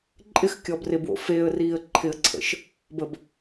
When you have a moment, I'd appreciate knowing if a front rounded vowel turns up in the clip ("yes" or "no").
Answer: no